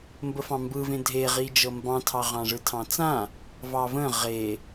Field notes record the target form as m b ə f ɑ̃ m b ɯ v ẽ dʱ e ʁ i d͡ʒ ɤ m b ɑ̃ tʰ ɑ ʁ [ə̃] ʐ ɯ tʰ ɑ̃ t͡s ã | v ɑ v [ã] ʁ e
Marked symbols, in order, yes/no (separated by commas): no, no